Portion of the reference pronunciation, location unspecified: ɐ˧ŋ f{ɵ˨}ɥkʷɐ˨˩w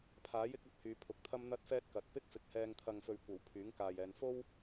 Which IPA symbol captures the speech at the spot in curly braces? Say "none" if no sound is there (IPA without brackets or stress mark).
ɵ˨